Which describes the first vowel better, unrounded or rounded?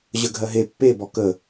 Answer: unrounded